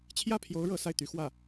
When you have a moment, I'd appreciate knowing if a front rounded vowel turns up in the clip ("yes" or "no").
yes